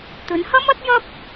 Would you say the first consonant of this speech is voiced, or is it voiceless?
voiceless